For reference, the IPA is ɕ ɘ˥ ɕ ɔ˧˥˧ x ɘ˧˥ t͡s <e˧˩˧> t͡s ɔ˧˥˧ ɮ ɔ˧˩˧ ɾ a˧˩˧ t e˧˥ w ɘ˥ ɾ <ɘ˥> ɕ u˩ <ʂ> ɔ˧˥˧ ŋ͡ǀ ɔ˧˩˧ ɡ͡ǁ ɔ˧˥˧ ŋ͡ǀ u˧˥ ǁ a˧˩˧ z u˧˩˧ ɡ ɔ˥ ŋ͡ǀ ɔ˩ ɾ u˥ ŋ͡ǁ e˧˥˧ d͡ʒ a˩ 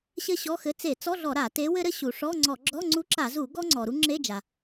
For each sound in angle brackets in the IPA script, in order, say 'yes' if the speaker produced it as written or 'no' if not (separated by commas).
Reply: yes, yes, yes